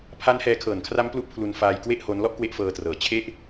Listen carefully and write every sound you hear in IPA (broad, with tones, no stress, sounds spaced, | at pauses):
pʰ a˦˥ n h ɛː˧ kʰ ɤː˨˩ n kʰ r a˦˥ m p l u˦˥ ʔ pʰ l u˧ n f aː˧ j k w e˥˩ ʔ h o˦˥ n l ɔ˥˩ ʔ k w e˦˥ ʔ f ɤː˧ t r ɤː˨˩ t͡ɕʰ e˥˩ ʔ